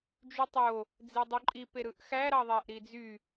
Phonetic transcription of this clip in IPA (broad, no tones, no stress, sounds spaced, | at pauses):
d͡ʒ y tˤ o | d͡z e dˤ u ǃʼ i p e ɾ ɯ ʔ x æ ɾ ɑ ðˤ æ ʔ ɾ i d͡z y